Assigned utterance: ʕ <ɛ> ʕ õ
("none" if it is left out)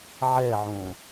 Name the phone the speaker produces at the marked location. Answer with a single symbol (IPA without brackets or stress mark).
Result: ɛ